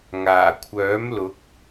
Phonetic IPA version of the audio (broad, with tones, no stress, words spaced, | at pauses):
ŋaː˨˩kʷʰœː˨˥mlʊ˨˥k̚